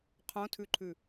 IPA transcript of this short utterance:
qʰ õ tʰ ʉ ǃʰ ʉ

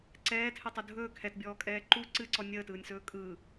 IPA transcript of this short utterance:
ǀ ɛː tʰ ɨ tˤ u dʱ ɵː kʰ ɛ t bʲ ɔː kʼ ɛː ǃ u ǀ ɨ ǀ ɔ nʲ əː t ɯː nʲ s ɵː kʼ ɯ

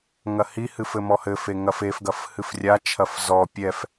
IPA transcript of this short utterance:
ŋ ɐ h i h ɨ f ɘ m ɔ h ɘ f e ŋ ɐ f e f ɡ ɐ f h ɨ f rʲ a t͡ʃʰ ɐ f z ɔ pʲ ɛ f

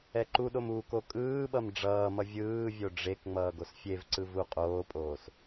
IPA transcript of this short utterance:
ɛ ǃ u ɗ o m u k o kʼ ɯː ɓ ʌ m ɖ͡ʐ ʌː m ʌ vʲ ɯː vʲ o ɖ͡ʐ e k ŋ͡m ʌː ɡ o s fʲ e v ǀ ɯ v u qʼ oː pʼ oː s

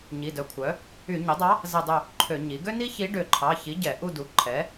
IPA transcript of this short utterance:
ɲ i˩˧˩ d œ˩˥ kʷʰ œ˩˥ | y˧˩˧ ɲ ɵ˩˥ dˤ ɑ˧˥ | z ɛ˦˨ dˤ ɵ˦˨ | ǃʰ ø˧˩˧ ɲ i˩˥ ɡ ø˥ n i˥ ç i˧˥ ɖ ø˧˩˧ ǃʰ ɑ˩˧˩ ç i˩˥ ɟ ɛ˧˩˧ ʔ u˦˨ d u˩˥ ǃʰ ɛ˩˥

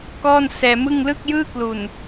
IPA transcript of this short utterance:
k ɔː˥˩ n s ɛː˧ m ɯ˥˩ ŋ l ɯ˥˩ k̚ j ɯː˥˩ k l u˨˩ n

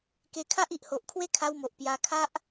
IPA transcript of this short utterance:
k e˧ kʰ a˦ ʔ i˨ ʔ h o˨ ʔ kʰ w e˦ kʰ a˧ w m o˨ ʔ p j a˧ kʰ a˦ ʔ

